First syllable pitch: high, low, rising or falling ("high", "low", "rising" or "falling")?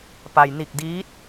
low